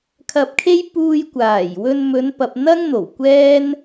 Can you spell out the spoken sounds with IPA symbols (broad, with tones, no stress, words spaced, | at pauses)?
kʰɐ˧p̚kʰe˥j puː˧jkʷaː˨˩jwɵ˧n mɵ˨˧npɐ˨p̚ n̪ɐ˥ŋ n̪o˨˩wkʷɛː˥n